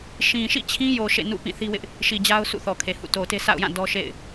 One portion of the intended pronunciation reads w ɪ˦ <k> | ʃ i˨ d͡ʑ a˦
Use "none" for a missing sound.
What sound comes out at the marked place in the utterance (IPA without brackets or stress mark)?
ʔ